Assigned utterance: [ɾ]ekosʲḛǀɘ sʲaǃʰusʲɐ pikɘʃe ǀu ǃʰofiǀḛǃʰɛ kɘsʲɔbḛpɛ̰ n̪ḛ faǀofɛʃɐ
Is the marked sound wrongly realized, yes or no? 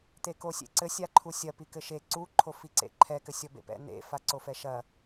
yes